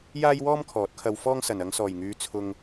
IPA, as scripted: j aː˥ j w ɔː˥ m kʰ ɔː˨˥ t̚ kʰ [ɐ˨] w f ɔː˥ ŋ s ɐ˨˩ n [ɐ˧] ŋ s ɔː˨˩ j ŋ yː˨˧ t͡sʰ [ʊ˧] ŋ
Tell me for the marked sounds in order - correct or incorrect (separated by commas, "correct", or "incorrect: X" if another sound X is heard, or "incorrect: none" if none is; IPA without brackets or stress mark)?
incorrect: ɐ˧, incorrect: ɐ˨˧, incorrect: ʊ˨